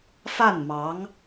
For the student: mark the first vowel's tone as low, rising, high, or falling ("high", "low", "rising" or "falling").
falling